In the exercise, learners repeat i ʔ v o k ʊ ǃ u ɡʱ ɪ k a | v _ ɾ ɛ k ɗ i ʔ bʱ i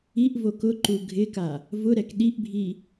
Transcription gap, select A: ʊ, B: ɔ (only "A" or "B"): A